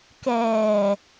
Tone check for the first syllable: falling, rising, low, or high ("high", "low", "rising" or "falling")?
low